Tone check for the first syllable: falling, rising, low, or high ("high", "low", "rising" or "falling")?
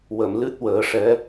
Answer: low